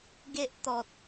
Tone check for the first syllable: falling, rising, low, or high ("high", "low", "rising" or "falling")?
high